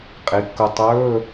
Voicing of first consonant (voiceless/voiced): voiceless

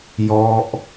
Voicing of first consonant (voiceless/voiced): voiced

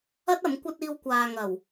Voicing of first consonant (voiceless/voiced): voiceless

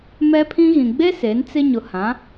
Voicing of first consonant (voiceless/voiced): voiced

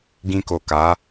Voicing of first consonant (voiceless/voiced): voiced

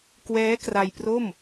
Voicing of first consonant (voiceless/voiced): voiceless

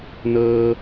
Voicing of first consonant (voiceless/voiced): voiced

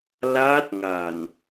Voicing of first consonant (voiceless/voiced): voiced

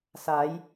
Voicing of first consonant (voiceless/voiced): voiceless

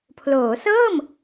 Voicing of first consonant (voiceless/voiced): voiceless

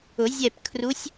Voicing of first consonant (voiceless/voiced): voiced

